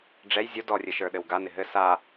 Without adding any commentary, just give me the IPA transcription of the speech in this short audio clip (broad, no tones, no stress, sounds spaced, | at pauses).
ɖ͡ʐ ɛ j zʲ o d ɔ rʲ ɘ ʃ ə˞ ɗ ɘ w ɡ a n ɪ ɦ ɘ s a